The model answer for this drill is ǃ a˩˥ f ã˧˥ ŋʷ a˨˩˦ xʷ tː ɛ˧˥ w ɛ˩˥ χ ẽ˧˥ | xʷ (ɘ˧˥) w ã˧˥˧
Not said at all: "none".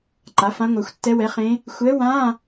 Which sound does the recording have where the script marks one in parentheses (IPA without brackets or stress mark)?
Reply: ɛ˧˥